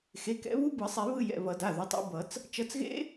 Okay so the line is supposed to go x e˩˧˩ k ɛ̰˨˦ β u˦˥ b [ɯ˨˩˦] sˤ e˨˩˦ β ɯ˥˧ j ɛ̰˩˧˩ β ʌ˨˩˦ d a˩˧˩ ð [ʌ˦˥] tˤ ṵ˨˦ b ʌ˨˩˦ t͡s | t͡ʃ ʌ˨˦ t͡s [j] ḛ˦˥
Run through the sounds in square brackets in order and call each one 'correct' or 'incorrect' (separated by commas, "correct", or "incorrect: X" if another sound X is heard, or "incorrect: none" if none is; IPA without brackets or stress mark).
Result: correct, incorrect: ʌ˨˦, incorrect: ɣ